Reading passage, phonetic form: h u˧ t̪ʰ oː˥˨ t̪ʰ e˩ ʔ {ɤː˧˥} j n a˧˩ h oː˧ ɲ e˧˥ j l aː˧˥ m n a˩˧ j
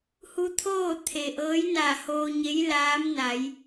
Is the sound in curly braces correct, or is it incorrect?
correct